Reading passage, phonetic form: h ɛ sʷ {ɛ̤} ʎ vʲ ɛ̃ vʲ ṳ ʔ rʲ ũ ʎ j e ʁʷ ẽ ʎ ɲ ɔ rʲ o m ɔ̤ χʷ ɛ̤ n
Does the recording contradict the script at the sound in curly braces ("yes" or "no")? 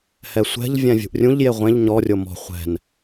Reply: no